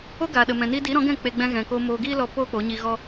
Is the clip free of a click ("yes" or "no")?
yes